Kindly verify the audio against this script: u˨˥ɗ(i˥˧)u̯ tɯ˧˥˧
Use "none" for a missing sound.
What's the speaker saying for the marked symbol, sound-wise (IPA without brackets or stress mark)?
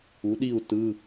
i˥˧